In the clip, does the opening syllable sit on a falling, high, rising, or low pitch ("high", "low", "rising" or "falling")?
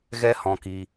high